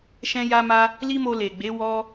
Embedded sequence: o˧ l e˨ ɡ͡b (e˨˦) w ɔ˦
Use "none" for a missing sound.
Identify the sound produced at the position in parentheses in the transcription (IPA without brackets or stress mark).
e˨˦